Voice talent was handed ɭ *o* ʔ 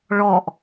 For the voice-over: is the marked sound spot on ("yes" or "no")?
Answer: no